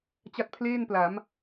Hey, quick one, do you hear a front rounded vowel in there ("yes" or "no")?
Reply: no